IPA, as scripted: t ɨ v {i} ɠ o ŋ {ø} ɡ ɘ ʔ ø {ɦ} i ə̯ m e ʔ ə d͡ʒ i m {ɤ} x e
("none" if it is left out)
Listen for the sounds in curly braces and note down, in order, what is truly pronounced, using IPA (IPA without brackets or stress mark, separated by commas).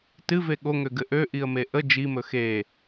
e, ø, ʔ, ɵ